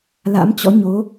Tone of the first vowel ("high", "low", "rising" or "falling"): rising